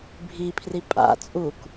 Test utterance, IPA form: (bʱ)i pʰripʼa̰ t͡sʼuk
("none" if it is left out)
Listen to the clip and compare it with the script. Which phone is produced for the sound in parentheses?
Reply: bʱ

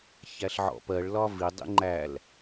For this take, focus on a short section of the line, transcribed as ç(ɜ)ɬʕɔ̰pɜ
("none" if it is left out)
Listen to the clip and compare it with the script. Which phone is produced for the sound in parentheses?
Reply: æ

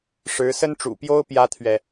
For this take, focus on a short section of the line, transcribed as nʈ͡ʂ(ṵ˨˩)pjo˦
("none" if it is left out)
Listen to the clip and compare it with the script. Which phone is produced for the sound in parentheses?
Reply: ṵ˨˩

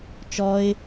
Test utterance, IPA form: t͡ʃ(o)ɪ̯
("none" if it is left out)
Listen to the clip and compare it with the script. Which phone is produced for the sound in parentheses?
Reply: ɔ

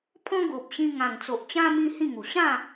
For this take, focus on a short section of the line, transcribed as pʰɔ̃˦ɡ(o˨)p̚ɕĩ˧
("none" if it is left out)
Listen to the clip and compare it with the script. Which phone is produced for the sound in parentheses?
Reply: o˨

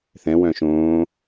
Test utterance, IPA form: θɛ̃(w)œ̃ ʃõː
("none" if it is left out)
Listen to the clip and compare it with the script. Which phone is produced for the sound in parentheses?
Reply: w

